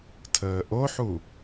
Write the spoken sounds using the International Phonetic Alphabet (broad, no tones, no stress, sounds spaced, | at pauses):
tʰ əː ʔ o ħ u